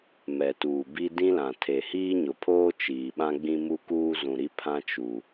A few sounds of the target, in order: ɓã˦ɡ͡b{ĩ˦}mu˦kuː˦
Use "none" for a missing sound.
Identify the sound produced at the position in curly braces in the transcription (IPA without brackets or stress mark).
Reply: ĩ˦